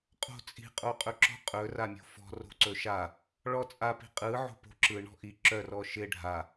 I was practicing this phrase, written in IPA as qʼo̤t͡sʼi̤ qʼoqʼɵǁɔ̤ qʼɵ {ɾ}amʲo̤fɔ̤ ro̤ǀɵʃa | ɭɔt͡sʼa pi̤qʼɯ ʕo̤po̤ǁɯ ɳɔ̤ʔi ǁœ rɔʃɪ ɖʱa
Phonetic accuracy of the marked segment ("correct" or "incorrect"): incorrect